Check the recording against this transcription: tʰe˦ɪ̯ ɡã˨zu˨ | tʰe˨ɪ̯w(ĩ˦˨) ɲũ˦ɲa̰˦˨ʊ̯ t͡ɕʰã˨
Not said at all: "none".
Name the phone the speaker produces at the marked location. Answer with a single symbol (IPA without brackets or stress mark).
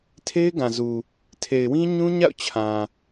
ĩ˦